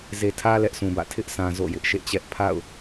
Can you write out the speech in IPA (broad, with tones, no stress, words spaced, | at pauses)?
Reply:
ze˨tʰä˦ lɛ˦ʔsũ˨bä̰˦˨ tʰɪ˦ʔsʰã˨ zo̰˦˨jɪ˦ʔ ʃḛ˦˨t͡ɕɛ˦ʔ pʰa̰˦˨ʊ̯